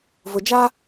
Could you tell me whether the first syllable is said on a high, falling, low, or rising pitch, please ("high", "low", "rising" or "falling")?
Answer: low